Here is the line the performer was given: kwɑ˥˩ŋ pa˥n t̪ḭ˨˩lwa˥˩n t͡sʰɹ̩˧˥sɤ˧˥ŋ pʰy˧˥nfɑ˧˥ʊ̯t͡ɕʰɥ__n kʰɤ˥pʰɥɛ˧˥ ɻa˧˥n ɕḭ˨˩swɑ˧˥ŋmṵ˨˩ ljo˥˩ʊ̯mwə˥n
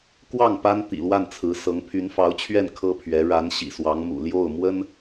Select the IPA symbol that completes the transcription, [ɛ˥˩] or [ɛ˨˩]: ɛ˥˩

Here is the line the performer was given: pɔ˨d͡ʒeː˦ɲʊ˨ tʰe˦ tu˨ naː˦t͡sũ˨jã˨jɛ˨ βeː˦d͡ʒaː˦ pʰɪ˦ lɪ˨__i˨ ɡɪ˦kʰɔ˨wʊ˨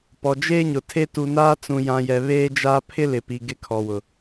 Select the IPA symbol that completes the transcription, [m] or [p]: p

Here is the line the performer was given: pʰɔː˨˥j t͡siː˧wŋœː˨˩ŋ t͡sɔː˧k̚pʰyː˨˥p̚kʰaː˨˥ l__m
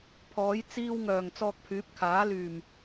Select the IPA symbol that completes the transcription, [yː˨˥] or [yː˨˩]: yː˨˩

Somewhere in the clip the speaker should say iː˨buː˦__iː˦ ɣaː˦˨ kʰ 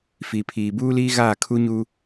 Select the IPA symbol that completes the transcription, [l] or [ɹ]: l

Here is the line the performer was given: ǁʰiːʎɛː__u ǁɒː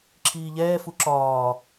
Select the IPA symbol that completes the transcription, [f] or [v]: f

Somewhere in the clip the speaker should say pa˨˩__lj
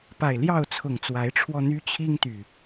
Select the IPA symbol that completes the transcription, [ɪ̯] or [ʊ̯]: ɪ̯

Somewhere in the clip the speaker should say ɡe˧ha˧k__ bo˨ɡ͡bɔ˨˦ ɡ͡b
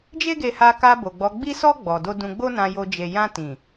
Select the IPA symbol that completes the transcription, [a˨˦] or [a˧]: a˧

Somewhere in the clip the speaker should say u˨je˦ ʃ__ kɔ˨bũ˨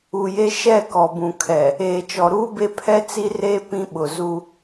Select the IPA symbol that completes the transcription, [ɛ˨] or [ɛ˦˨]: ɛ˦˨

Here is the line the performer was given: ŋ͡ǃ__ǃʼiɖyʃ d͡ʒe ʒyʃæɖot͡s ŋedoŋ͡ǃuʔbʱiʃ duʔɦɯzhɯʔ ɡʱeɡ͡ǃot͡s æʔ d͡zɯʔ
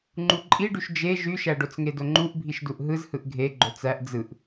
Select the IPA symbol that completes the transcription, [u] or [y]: u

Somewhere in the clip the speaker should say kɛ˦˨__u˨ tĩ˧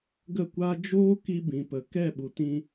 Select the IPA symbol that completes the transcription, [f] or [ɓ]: ɓ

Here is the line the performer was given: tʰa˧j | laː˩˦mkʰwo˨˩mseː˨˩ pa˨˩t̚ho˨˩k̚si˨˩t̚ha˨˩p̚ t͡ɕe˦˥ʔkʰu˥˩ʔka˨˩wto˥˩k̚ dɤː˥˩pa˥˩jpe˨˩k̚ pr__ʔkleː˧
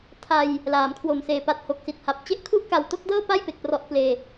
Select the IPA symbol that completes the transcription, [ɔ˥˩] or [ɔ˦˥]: ɔ˦˥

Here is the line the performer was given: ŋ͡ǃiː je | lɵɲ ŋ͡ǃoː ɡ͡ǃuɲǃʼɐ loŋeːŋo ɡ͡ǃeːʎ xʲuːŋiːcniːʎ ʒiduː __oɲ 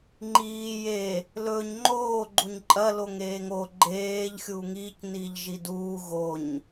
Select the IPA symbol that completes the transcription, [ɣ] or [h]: ɣ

